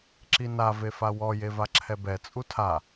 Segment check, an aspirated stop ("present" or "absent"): present